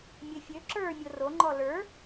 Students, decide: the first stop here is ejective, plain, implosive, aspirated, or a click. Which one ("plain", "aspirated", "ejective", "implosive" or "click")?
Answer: click